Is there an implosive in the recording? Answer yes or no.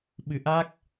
yes